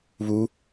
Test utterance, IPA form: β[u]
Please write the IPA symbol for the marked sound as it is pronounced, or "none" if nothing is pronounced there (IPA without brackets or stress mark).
u